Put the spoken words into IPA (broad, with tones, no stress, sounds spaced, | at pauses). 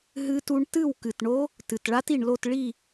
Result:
ɦ ɨ˦˥ t u˦˥ ɳ t ɨ˥˨ w k ɨ˨˩ t ɳ o˦˥ | t ɨ˨˩ t ɭ a˦˥ t i˨˩ ɳ l o˥˨ t ɭ i˥˨